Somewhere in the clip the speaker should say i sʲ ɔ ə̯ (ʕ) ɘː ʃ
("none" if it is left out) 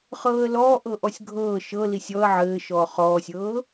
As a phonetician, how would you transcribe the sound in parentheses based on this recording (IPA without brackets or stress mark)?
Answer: ʕ